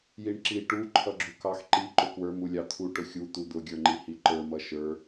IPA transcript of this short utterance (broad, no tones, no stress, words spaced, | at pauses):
jiɳǁi ʈu ǃʰʌɡ͡ǁukɑx ǃi ǃʊkwə˞ mulʲɑt̪ʰu ʈʊxʲu t̪ud̪ʊ ɡʲə˞ŋ͡ǃihiǃə˞ mʌʃə˞